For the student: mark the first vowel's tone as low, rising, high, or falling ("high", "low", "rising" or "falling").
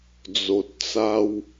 low